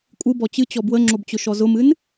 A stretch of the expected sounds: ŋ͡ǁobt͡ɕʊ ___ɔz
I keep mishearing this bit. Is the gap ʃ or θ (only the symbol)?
ʃ